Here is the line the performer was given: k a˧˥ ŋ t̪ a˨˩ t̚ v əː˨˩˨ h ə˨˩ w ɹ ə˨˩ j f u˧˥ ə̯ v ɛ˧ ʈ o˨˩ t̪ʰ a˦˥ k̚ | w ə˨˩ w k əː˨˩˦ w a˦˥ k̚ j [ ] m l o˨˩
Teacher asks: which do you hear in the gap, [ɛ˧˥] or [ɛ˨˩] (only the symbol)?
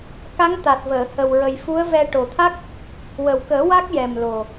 ɛ˨˩